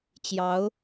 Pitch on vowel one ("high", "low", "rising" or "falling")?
rising